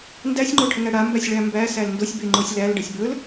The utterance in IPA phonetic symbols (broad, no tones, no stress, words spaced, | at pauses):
ndæsʲŋ͡ǃoʈʰəŋæ ɽambæsʲɭæ mbæsæl ndosʲbeŋ͡ǃosʲ lælɖəsʲ bɵl